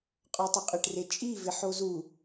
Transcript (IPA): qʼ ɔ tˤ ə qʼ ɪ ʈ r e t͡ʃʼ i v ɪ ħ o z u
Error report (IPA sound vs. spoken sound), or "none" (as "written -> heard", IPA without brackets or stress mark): none